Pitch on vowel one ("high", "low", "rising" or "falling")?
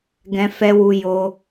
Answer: high